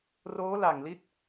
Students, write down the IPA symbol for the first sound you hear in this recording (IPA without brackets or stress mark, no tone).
r